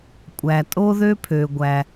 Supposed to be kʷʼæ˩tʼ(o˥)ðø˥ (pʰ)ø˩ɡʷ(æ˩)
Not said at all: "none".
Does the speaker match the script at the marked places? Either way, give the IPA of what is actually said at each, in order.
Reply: o˥, pʰ, æ˩

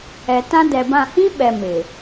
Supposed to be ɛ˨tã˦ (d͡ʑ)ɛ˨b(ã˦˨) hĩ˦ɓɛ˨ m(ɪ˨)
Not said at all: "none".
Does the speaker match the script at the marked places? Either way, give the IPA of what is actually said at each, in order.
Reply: d, ã˦˨, ɪ˨

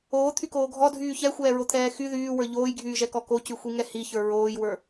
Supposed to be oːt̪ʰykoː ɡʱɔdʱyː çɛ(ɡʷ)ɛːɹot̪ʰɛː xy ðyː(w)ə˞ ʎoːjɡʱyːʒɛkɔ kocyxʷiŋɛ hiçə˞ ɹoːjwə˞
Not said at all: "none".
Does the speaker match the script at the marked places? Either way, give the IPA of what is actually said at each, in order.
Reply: xʷ, w

